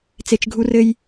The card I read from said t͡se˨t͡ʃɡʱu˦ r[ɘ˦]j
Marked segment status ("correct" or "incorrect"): correct